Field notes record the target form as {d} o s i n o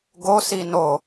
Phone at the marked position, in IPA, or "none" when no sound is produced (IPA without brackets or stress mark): ɡ